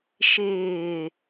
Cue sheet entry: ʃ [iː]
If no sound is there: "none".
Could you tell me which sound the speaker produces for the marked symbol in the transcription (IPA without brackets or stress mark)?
ɪː